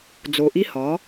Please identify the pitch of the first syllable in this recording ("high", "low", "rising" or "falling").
low